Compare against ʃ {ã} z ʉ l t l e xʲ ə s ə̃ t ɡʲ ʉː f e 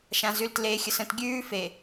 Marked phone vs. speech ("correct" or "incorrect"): correct